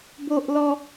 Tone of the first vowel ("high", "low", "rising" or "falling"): high